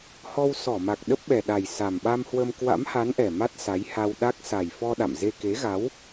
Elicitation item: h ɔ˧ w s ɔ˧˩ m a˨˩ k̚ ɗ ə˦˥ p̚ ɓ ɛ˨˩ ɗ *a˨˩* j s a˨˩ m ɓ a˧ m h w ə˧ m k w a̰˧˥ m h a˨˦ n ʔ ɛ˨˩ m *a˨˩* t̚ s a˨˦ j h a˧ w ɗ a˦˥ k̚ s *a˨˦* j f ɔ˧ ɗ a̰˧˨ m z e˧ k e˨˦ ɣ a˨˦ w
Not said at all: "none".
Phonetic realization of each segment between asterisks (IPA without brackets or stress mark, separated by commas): a˨˩, a˦˥, a˨˩